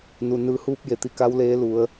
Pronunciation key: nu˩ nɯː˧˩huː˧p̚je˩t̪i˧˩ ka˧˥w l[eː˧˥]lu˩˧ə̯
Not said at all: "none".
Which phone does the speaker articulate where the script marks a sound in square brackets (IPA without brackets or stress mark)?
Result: eː˧˥